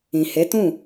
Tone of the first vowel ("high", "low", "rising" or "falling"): low